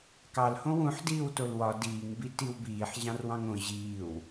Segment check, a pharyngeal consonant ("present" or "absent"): present